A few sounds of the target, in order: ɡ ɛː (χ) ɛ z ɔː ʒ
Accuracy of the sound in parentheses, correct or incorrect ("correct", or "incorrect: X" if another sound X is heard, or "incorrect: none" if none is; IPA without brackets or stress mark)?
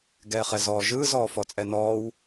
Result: correct